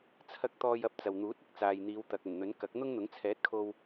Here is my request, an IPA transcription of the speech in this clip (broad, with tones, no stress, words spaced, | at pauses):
t͡sʰɐ˧k̚ t̪ɔː˧jɐ˧p̚t͡sɐ˨wn̪uː˨˥t̚ ɪ˥k̚ t͡saː˨jn̪iː˨˧wt̪ɐ˨k̚ ɵ˨˩nn̪ɵ˨˥n kɐ˨˥k̚ n̪ʊ˥ŋn̪ʊ˨˥ŋ t͡sʰɛː˨˥t̚kʰo˧w